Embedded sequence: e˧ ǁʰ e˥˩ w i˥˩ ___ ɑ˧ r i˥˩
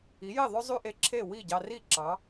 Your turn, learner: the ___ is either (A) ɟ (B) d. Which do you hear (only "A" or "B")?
A